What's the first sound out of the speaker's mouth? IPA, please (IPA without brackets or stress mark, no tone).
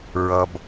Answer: ɹ